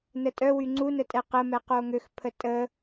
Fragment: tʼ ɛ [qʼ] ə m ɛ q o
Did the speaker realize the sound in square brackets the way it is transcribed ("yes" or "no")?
no